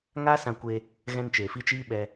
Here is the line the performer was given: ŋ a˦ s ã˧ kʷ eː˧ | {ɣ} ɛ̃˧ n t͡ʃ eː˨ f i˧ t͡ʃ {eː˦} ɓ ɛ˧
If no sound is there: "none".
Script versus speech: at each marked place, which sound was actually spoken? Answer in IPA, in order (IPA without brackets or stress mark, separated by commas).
ɣ, iː˦